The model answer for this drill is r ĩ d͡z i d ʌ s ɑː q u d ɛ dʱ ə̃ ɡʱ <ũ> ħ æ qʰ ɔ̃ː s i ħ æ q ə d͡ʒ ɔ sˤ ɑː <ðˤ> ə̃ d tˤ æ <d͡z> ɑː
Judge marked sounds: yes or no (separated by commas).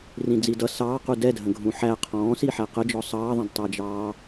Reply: yes, yes, no